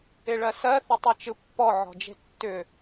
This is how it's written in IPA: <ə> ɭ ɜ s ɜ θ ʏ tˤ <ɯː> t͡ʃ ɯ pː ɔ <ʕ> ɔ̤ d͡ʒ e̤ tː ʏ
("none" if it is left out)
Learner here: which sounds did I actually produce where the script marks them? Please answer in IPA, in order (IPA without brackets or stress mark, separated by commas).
ɪ, ɯ, ʕ